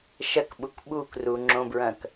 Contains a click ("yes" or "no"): yes